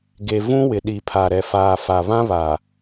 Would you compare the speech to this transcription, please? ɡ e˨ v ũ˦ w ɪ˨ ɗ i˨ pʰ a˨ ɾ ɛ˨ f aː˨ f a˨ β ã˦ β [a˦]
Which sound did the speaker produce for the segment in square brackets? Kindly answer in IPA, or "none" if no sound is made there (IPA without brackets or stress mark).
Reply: a˨